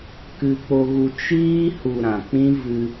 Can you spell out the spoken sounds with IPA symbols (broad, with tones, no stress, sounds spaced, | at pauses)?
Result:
k ɨ˧ k͡p o˧ ɣ u˧ t͡ʃ iː˧ h u˨ ɾ ã˨ k͡p ĩ˦ v ɨ˧